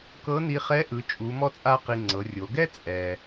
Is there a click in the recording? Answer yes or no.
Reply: yes